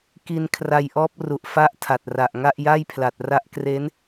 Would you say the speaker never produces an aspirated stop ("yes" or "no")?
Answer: no